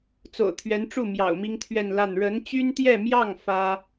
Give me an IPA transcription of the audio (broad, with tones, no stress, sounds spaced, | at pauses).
t͡s o̰˨˩ ʊ̯ t̪ʰ ɥ ɛ˧˥ n ʈ͡ʂ u˥˩ m j ɑ̰˨˩ ʊ̯ m i˥ ŋ t̪ʰ ɥ ɛ˥˧ n l a˥˩ n ɻ ə˧˥ n t͡ɕ y˥ n t̪ j ɛ˥˧ m j ɑ˥˩ ŋ f ä˥